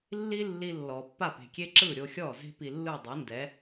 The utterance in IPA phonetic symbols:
lː i˥ lː i˧ lː ɔ˩ pː a˥˩ p e̤˩ kʲ e˥ ǁ ɯ˥˩ ɾʲ o˧ xʲ ɔ˥˩ z e̤˥ p i˧ lː ɯ˥˩ dˤ u˩˥ n d ɛ˩˥

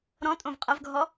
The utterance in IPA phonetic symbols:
ɾ ɔ̃ tʼ õ v qʼ ɐ v ɡʱ ɔ

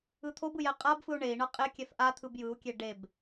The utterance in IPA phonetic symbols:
ɯ t̪ʰ o b ɯ j ɛ qʼ a b f ɯ u̯ ɳ e i̯ ɳ ɤ qʼ e kʲ ɛ f ʔ a t̪ʰ ɯ b j ɯ u̯ kʲ e ɖ e b

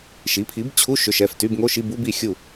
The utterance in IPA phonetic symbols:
ʃ i˩˥ pʰ i˩˥ b t͡ɕʰ u˧˥˧ ʃ ʏ˩˧˩ ʃ ɛ˩˧˩ f t y˧˥˧ b ŋ o˧˥˧ ʃ i˧˥˧ b u˧˥˧ b i˥˩ xʲ u˥˩

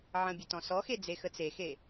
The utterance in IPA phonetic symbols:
ʕ ə̃ bʲ ə t ɔ̃ s ɔ x e d͡z e x ə t͡s e x e

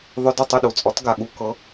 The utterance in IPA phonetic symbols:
ðˤ ʏ˧ d ʏ˥˩ tˤ ʏ˥˩ ɗ u˩ t͡sʼ ɔ˩˥ t ɡ a˩ ɠ u˧ k ɤ˩˥

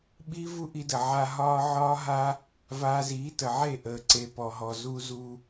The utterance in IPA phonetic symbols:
ɓ i˦ v u˦ ʔ i˧ d ə˨ ʕ a˧ ɦ ɒː˦ ʕ ɒː˦ ɦ a˦ | v aː˧ z iː˨˦ t ə˨ ʕ e˦˨ ʔ əː˨ ǀ e˨ p ɔ˨ ɦ ɔ˨ z u˧ z u˧

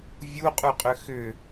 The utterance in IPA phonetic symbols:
vʲ u qʼ u qʼ ʏ x ʏ

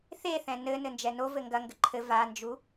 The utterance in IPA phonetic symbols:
θ e θ ɛ̃ n ɘ n ɘ n d͡ʒ ɛ n o v ɘ ŋ ɡ ɐ ŋ ɡ ɘ ǃʰ ɘ v a n d͡ʒ u

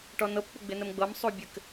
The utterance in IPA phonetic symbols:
ʈ ɔ n ɤ p k͡p ʊ ɡ͡b ɪ n ə m ɡ͡b ɤ m sˤ u bʲ ɘ k

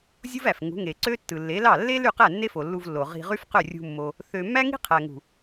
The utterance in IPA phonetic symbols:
zʲ u˦ v æ˨ f ŋ ṳ˨˦ ŋ e˨ ǀ ø˦ tː ɯ˨ lː e˨˦ l ɑ˦˨ lː e˦ l y˦˨ q æ˦˨ nː e˦ f o˨ lː u˧ v lː o˨ ʁ i̤˧ ʁ y˦ f q ø˦˨ rʲ ṳ˧ mː o˧ | θ ø˧ mː æ˦ ŋ i̤˦ qʰ æ˨ ŋ ṳ˨

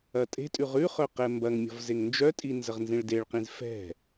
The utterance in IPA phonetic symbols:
ɐ tʼ e̤ tʼ ʉ ʁ ʉ χ œ q ɛ m b ɐ ŋ mʲ ɔ̤ v z e ŋ n d͡ʒ œ tʼ i n z ə ʁ n z ĩ ɭ d e ɭ q ĩ z f ɛ̤

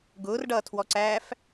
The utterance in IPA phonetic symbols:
ɡ ʊː r ɖ ʌː tʰ w ɔ ǀ æː f

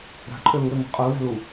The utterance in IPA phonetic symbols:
ɾ a̤ ǃʼ ø l u ɾ e ŋʷ a̤ qʼ u l a̤ l u

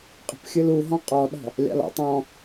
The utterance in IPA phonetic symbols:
qʼ ə̤ p xʲ ɯ l u ɦ ɔ̃ qʼ ɔ ɗ ɔ̤ | lʲ ɑ̰ l ɔ̰ tˤ ɔ̃

